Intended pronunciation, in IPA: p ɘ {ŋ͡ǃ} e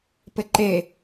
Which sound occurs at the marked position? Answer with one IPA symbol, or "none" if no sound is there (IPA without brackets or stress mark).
ǃ